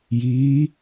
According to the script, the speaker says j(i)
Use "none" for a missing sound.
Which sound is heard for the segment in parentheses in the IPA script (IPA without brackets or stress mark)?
iː